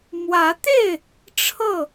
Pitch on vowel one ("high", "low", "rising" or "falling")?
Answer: rising